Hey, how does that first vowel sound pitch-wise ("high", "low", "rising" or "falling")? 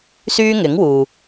high